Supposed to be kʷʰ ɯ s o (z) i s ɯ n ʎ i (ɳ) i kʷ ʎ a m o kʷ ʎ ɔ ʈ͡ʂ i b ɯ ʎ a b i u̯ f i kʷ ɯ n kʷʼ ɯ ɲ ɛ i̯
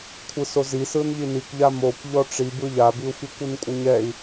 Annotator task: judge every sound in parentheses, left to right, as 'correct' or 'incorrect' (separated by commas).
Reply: correct, incorrect